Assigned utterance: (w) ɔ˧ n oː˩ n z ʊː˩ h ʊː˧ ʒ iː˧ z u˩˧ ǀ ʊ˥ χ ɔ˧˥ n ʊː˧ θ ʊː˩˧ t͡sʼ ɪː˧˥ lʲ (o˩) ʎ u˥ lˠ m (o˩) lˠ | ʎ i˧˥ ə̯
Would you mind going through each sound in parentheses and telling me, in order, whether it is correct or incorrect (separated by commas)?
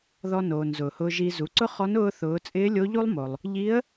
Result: incorrect, incorrect, correct